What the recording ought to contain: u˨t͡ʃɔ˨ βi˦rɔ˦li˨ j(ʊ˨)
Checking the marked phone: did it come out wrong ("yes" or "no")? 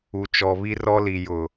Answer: no